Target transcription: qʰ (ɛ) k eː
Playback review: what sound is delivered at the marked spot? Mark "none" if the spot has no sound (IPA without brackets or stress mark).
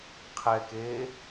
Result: ɛ